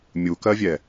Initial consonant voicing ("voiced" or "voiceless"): voiced